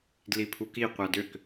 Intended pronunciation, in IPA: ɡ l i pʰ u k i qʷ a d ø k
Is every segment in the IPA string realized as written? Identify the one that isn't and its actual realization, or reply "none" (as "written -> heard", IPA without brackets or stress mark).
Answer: ɡ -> d